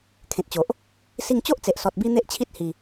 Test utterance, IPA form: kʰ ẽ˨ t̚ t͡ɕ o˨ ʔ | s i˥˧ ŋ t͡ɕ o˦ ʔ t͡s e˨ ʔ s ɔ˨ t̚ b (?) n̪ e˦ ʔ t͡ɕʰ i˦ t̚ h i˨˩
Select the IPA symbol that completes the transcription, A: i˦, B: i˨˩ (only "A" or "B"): A